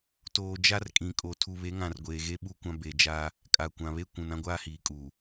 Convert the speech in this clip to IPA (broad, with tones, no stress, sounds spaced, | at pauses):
t oː˨ d͡ʒ a˦ r kʼ ĩ˨ kʼ o˨ tʰ u˨ β e˨˦ ŋ ã˨ r ɡʷ eː˨ ɣ e˦ ɓ u˦˨ kʷ ã˦ b e˨ d͡ʒ aː˦ | kʼ a˨ kʷ ã˨ β e˦ kʷ ũ˨ n ã˦ ɡʷ aː˦ h iː˨ kʼ uː˨